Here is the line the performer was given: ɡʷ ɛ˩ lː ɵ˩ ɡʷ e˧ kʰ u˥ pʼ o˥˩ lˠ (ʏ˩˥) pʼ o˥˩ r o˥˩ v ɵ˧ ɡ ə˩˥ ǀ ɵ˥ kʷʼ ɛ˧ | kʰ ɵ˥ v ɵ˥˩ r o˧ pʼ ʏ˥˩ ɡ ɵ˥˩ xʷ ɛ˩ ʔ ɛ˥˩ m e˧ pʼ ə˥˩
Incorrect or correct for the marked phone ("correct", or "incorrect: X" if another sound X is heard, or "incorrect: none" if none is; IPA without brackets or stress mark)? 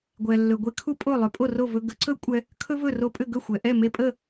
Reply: correct